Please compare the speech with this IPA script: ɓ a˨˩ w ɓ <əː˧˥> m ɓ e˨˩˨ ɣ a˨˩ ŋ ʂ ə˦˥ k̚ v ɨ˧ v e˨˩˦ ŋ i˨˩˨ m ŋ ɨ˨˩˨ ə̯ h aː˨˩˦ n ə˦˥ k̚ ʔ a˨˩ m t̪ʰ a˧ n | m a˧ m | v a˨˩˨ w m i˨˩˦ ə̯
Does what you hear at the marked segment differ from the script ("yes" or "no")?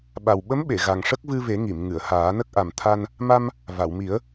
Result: yes